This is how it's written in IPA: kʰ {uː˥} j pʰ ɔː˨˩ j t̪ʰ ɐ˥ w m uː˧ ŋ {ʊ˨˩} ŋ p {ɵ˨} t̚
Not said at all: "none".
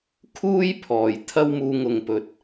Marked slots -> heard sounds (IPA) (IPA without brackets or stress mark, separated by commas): uː˥, ʊ˨, ɵ˨